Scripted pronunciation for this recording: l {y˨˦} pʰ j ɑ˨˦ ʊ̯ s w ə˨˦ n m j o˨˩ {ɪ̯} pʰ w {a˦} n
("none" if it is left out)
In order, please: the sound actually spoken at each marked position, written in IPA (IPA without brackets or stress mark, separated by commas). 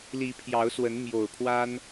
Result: i˨˦, ʊ̯, a˦